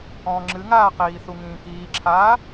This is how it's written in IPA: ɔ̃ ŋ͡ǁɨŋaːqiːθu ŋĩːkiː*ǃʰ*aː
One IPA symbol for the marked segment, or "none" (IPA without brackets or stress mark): ǁʰ